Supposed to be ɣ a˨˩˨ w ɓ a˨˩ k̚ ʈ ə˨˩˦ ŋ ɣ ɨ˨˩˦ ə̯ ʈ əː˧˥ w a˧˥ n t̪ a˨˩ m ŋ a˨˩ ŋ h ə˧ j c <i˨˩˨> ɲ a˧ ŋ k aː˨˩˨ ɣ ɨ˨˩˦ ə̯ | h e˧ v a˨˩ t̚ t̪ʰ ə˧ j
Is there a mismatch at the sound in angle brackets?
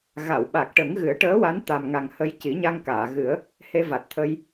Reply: yes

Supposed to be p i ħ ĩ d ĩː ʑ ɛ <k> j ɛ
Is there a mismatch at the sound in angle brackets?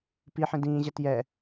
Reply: yes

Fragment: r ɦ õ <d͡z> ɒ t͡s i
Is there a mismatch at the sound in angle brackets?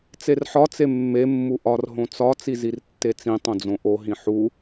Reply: yes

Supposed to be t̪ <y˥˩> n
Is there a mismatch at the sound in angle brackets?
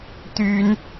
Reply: yes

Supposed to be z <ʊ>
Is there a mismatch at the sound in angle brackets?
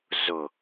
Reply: no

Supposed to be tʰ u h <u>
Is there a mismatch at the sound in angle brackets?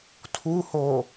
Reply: yes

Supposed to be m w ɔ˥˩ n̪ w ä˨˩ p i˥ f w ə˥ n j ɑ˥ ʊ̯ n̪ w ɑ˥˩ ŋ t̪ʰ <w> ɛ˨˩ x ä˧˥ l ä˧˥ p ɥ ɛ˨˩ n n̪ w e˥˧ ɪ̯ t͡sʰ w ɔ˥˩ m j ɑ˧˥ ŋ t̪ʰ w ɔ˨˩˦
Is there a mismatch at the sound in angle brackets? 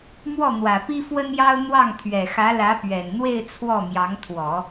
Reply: yes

